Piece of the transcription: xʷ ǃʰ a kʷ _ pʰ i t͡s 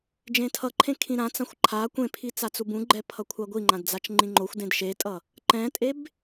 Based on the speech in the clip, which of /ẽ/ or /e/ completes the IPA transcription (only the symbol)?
ẽ